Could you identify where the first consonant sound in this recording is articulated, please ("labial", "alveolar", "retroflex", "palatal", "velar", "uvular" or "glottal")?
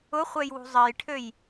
uvular